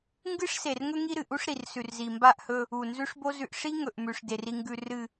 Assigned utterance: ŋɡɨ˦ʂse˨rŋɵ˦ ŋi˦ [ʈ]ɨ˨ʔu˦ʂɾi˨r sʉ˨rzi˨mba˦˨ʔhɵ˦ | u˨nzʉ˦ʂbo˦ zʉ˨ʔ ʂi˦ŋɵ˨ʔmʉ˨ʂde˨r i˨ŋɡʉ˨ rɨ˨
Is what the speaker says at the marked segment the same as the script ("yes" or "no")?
no